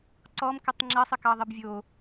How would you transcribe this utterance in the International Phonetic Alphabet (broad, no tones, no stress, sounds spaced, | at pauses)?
ǀ ɔ m k ə tˤ ŋ͡ǁ ɐ sˤ ə k ɑ ðˤ ə b vʲ o